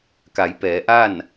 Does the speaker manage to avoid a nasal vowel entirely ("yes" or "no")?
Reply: yes